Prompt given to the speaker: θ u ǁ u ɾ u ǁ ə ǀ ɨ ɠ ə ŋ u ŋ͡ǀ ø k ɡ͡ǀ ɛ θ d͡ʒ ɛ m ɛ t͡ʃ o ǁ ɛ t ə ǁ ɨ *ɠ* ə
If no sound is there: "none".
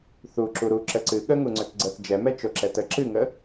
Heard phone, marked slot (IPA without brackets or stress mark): ŋ